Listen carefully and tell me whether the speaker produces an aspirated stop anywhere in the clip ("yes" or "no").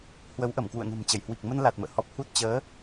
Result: no